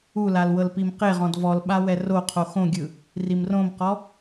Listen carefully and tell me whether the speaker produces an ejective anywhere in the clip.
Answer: no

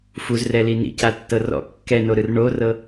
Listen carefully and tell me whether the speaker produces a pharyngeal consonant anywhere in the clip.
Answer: no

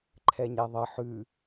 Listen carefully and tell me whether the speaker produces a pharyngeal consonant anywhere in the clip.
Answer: yes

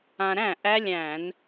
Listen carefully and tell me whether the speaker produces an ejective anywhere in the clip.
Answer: no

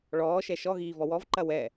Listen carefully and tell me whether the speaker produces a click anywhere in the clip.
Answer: yes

